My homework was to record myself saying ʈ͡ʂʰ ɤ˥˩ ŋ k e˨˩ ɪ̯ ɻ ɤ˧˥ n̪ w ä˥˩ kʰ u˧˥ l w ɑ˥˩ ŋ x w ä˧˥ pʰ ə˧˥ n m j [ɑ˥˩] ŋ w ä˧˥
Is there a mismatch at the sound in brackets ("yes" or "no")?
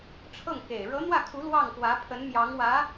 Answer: yes